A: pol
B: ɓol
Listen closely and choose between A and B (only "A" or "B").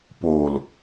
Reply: A